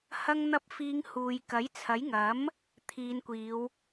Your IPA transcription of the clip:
hɐ˧ŋn̪ɐ˧p̚fiː˨˧ŋ huː˨j kɐ˨˥jt͡sʰɐ˨˥jŋɐ˨˥m | t̪ʰiː˨˧nkʷiː˨˧w

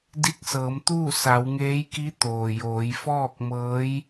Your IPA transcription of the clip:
di˧˥k̚sɤː˩˧mt̪uː˥˨ sa˩˧wŋeː˧˥jki˧˥ t̪oː˩joː˩˧j fɔː˥˨k̚mɤː˧˥j

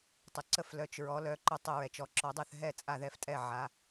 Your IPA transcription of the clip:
tˤə˨˦ǀə˥˨f lœ˨˦t͡ʃɹɔ˨˦ lœ˨˦ ǃœ˥˨tˤə˥˨ɹɛ˨˦t͡ʃ ɔ˨˦ǁɔ˨˦dˤœ˥˨θ ɦɛ˥˨ t͡sʼa˥˨ðɛ˥˨ftʼɛ˥˨ ʕa˨˦

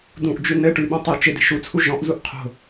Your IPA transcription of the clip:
dũʔd͡ʒʉ nɘ ʈʉɓõ tˤe t͡ʃɪ de̤ʃut͡sʰu ʒɔ̃ʔzuʔ qʰo̤

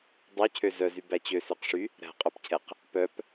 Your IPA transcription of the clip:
dˤøcʰø zœzy bæt͡ɕøsøqʂy | ɾæ̤qʼœpcʰɛq | pœp

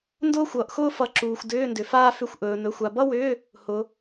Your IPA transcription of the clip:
ndʊː˥xʷʌː˨ʔxʊː˥ fʌ˨˦ǁuː˨xʷ dʏː˧˥˧ndʏ˨faː˥ fʏ˧˥˧xʷ ʔɵː˨˦nɵ˧˥˧xʷa˧˥˧ bʌ˥wʏː˧˥˧ | hʊ˨˦

